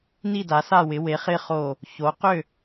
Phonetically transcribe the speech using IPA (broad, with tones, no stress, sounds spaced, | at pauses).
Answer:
n i˥˩ d a˩˥ s a˥˩ w ɪ˩˥ w e˩˥ χ ɪ˥˩ χ o˥˩ | ç o˩˥ q ʏ˥˩